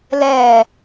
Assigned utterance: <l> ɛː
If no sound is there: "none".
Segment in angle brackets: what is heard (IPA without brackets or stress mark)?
l